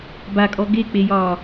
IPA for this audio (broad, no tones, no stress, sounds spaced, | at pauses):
b a kʼ ɔ ɡ e k͡p e j ɒː